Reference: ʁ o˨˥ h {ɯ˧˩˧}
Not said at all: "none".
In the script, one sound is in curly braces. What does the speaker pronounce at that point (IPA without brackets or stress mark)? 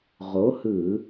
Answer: ɯ˧˩˧